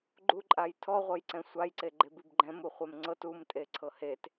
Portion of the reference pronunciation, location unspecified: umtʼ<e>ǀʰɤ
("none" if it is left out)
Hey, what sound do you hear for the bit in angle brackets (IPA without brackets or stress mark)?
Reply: e